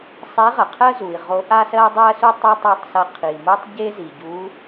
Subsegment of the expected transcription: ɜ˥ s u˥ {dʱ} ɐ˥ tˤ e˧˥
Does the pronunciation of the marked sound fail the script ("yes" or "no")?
yes